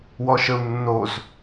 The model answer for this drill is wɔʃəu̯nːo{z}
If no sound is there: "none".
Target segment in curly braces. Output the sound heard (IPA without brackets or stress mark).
z